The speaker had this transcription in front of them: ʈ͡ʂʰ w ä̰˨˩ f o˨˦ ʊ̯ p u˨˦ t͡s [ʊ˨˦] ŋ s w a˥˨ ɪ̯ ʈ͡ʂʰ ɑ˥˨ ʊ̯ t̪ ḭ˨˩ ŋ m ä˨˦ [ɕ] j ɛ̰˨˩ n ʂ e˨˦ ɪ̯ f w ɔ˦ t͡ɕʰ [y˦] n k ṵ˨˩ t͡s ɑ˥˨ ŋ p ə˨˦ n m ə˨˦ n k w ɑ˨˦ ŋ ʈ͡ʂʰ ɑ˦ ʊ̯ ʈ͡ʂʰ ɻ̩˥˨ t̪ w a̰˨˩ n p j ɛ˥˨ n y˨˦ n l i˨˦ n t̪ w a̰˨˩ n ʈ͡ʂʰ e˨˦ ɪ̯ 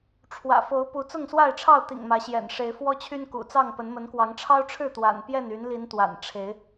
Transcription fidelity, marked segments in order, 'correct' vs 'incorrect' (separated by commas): incorrect, correct, correct